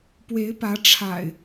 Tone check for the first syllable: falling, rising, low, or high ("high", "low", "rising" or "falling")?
rising